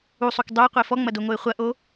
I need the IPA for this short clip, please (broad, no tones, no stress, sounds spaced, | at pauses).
u sˤ u k dˤ o ə̯ qʷ e f ɔ ŋ͡m ɐ d o ŋ o ɪ̯ χʷ ɐ ʔ o